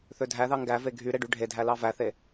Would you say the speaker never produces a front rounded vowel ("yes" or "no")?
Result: no